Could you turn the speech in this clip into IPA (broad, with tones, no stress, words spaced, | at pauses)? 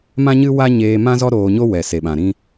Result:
mã˦ɲɨ˦wa˦ ɲeː˧mã˦zɔ˦ ɾoː˧ɲo˦wɛ˨ se˨ɓã˨ɾĩ˦